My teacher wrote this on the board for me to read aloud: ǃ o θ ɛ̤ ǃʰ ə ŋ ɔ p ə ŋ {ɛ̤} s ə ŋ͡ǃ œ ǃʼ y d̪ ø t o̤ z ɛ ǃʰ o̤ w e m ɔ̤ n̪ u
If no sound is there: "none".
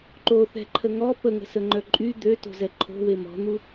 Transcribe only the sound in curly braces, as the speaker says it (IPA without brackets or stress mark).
ə̤